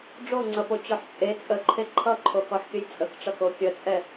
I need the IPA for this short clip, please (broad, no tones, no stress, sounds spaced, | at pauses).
ɖ͡ʐ o ŋ͡ǀ ʌ p o t͡ɕ ɔ ħ t͡sʼ e t͡sʼ ə ǃʰ e ǃʰ ʌ ǃʰ o k ɔ ħ kʲ ə j t͡sʼ ə k ʈ͡ʂ ʌ k o kʲ ə t͡sʼ ɛ